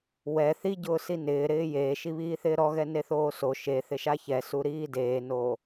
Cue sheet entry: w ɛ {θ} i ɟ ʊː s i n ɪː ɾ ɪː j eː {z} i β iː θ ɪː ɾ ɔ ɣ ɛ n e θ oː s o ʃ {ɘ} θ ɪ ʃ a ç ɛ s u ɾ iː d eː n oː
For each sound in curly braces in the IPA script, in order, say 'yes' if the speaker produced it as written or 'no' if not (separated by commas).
yes, no, no